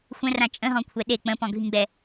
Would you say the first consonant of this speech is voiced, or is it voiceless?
voiceless